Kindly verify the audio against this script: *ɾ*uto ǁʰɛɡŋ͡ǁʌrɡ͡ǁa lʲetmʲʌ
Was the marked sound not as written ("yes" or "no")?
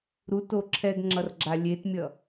no